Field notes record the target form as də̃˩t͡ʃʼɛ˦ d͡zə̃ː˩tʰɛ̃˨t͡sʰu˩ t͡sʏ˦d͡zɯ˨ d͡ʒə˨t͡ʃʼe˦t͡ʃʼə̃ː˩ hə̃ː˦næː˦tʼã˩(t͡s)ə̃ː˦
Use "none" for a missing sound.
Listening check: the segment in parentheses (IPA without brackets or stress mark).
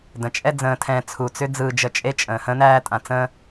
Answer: t͡s